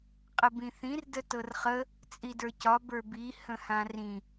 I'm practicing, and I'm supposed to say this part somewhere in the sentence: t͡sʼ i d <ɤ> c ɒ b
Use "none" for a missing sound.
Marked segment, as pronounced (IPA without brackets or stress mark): ə˞